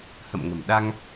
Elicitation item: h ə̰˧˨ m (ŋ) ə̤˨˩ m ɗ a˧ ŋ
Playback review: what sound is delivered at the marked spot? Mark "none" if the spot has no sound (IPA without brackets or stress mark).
ŋ